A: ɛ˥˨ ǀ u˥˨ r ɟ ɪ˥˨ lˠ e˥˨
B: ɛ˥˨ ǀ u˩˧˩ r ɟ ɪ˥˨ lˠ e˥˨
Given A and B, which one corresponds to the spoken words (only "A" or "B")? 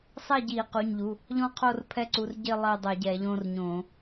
B